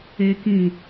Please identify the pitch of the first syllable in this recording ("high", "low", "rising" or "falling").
high